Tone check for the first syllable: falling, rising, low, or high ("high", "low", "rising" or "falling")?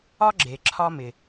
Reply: high